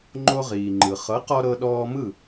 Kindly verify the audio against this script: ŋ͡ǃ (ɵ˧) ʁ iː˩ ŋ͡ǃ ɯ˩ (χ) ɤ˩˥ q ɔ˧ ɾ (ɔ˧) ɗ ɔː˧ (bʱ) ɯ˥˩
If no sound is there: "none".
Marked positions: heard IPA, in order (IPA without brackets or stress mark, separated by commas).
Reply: o˧, χ, ɤ˧, m